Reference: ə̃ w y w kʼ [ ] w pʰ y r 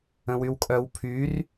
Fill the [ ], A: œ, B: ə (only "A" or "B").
A